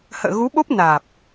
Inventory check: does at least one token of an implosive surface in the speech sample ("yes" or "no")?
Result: yes